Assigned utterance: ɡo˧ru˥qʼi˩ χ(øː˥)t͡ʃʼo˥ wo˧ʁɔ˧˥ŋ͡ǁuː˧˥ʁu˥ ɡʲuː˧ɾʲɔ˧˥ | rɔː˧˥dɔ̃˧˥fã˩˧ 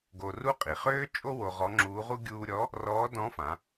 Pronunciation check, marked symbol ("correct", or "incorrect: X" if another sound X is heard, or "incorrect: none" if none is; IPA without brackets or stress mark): correct